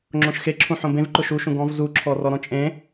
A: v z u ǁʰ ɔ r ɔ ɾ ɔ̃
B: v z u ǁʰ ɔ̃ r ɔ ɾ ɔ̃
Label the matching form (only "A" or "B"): A